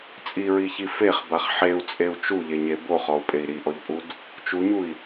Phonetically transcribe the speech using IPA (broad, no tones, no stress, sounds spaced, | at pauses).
t͡sʼ i ɹ i ç i f e χ b a χ ħ e u̯ t͡sʼ e u̯ t͡ʃ u ʎ e ɲ e b o χ ɔ u̯ pʼ e i̯ ɾ i ʔ ɔ ʎ pʼ u d | t͡ʃ u ɲ u i̯